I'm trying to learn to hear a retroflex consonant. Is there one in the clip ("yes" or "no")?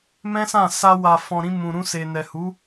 no